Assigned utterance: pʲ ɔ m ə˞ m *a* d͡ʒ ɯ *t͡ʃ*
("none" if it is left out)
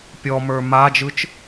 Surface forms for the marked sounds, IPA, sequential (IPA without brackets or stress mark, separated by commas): a, t͡ʃ